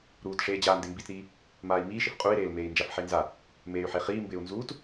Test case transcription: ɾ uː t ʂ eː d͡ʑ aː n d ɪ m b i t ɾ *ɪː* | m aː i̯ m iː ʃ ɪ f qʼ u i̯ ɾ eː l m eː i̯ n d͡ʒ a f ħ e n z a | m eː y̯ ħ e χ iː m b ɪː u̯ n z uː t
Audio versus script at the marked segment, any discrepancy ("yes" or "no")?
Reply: yes